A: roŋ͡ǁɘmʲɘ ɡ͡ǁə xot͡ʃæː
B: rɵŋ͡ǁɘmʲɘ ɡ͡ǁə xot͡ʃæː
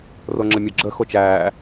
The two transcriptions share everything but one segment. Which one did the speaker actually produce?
A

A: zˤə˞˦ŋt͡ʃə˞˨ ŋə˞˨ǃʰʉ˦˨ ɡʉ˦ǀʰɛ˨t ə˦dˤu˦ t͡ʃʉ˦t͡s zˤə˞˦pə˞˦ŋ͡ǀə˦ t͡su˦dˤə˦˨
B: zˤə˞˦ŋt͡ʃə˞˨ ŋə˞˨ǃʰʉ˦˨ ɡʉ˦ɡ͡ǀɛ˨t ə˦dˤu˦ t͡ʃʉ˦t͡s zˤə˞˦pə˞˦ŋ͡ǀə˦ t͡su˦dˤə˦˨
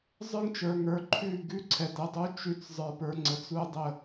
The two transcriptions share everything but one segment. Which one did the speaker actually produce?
A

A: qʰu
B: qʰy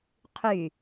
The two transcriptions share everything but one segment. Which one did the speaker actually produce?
B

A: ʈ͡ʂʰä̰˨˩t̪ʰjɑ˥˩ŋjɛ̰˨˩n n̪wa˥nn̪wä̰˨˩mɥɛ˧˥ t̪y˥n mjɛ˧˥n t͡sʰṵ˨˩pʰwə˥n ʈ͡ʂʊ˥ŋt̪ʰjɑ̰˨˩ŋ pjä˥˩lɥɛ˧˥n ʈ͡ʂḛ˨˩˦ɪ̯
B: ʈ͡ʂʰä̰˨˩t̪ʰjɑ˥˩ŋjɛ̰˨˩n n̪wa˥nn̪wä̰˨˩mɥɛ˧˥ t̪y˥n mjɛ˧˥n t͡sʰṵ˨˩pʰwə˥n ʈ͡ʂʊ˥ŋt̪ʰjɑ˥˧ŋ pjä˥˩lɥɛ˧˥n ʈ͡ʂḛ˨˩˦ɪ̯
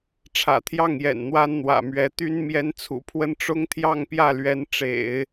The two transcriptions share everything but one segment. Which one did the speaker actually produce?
B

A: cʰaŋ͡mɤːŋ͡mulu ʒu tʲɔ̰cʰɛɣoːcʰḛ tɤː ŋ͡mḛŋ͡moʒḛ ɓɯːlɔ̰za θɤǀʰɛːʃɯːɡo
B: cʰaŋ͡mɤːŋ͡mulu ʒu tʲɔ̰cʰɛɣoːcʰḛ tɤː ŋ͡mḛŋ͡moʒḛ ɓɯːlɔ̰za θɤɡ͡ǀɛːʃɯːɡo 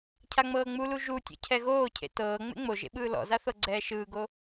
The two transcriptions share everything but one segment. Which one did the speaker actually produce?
B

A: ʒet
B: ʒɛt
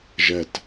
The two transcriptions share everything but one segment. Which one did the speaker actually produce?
B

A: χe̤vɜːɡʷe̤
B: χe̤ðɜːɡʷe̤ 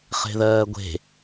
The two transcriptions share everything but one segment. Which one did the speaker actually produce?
B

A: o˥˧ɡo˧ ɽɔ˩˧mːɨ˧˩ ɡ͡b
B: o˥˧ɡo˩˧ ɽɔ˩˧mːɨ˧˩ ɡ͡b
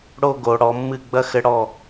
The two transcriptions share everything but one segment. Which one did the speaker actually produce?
B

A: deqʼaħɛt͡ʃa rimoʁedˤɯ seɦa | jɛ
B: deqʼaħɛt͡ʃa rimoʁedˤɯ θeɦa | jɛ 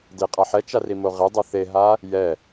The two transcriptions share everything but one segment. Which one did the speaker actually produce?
B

